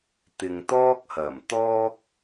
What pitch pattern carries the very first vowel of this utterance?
low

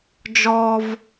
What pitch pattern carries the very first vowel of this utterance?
high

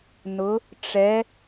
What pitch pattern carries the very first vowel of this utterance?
rising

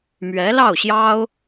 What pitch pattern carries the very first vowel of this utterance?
rising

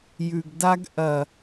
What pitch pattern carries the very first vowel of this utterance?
low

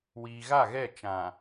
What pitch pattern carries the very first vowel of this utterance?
low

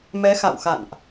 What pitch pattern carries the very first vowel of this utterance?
rising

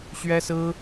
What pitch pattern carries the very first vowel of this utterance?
high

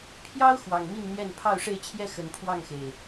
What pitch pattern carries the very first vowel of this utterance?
high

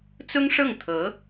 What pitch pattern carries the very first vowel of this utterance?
high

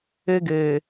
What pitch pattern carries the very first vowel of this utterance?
high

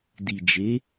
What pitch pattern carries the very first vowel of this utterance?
low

